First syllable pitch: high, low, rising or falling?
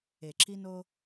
low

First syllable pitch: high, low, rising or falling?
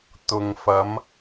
low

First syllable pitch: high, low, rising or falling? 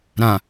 low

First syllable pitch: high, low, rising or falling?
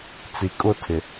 low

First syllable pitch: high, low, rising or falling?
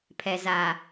low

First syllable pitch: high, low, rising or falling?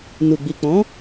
low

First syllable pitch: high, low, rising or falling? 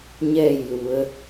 falling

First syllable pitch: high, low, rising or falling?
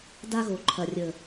high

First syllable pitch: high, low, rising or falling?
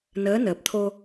rising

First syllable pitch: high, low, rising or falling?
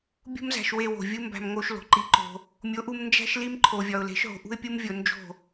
high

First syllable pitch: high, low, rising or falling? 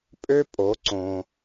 high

